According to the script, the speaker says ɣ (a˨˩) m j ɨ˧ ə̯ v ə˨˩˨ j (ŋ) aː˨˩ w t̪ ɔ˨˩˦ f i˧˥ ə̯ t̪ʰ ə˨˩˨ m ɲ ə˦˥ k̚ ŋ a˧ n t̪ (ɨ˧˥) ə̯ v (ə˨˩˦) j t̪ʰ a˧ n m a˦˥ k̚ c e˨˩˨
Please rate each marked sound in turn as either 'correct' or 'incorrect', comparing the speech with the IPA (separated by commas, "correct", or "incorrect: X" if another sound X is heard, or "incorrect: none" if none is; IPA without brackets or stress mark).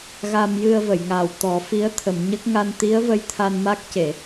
incorrect: a˧, correct, incorrect: i˧˥, incorrect: ə˧